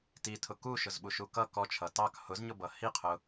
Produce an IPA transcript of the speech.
t i tʰ ʊ k u ʃ ʊ z ɓ u ʃ u k ʌ k ɔ t͡ʃʰ ʌ t ɑ k h ʊ z ɲ ʊ b ʌ h i qʰ ʊ

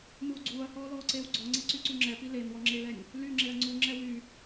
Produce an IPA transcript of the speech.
m uː ɡ͡ǀ uː ɐ̯ h ɔː l ɔː ǀ eː w ɡ͡ǀ ɔ ŋ͡ǀ e ǀ y ǀ y ŋ͡ǁ ɛ p i l e n w ɔ ŋ͡ǁ e l ɛ nʲ | l y ŋ͡ǁ e ɐ̯ ŋ͡ǀ u ŋ͡ǁ ɛ w y

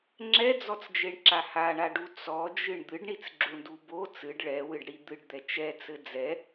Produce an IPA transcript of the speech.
ŋ͡ǁ ɛ d͡z ɔ t͡s d͡ʒ e ɳ ǁ a h a ɳ a ɖ u t͡s ɔ d͡ʒ ɨ ɳ d̪ ɨ ɖ ɳ i t͡s ɡ͡ǁ u ɳ d u b o t͡s ɨ ɖ ɭ ɛ w ɨ ɖ ɽ i d̪ ɨ ɖ d̪ ɛ t͡ʃ ɛ t͡s ɘ d͡z ɛ

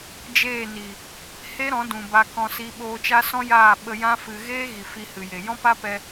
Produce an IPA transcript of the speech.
d͡ʒ eː˦˨ n i˨ | h e˦ ɾ ɔ̃˨˦ d ũ˨ b a˧ k ɔ̃˧ s i˧ ɓ oː˧ t͡ʃ a˦ s ɔ̃˦ j aː˦˨ ɓ ə˧ j ã˦ f ɨ˧ ɣ eː˦ ɣ i˨ f i˧ h ɨ˨ j e˨ j ɔ̃˦ p a˦ p ɛ˧

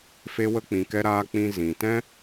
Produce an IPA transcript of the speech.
f e˦ w ə˦ k͡p ĩ˧ k ɛ˦ ɾ aː˧ k͡p ĩ˧ z ĩ˨ t ɛ̃˦

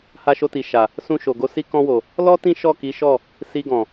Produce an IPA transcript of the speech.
h a˧ ʃ o˧ t i˨ ʃ a˨ | s ũ˧ ʃ o˨ ɡ o˧ s i˧ k ɔ̃˧ w o˨ | l ɔ˦ t ĩ˦ ʃ ɔ˦˨ k i˨˦ ʃ ɔ˦˨ | s i˧ ɡ ɔ̃˨

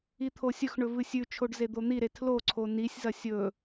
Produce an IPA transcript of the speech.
i t̪ʰ o sʲ ɵ x ɳ ɵ v ɨ sʲ ʉ t͡ʃʰ o ɖ z e d̪ o n̪ i ɾ e tʰ l o ǀʰ o n i sʲ z ɐ sʲ ɵ

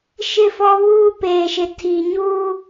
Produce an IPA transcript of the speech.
ʃ ɪ˦˨ f ɔ˦ β uː˦ p eː˨ ʃ ɪ˨ tʰ i˨ ɲ u˦

